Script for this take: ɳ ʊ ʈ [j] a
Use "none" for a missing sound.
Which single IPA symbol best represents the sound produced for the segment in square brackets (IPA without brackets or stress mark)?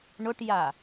j